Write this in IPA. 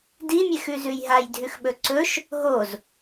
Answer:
dimʲexʉzʉj ɦajdʱʉxɓɵ ǀɵʃ | ɦoz

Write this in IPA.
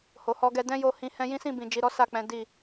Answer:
ho˨hɔ˧ɡɛ˧ dɛ̃˦jo˧ hĩ˧ hɛ̃˧ jĩ˦sĩ˦˨ bĩ˨ d͡ʒi˨ɾɔ˨˦ sa˦˨k͡pɛ̃˨˦ di˦˨

